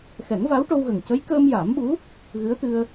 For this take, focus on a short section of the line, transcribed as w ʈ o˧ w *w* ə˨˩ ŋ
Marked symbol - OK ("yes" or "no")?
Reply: no